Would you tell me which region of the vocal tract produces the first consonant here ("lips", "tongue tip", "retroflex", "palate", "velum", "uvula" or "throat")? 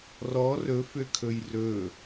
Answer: tongue tip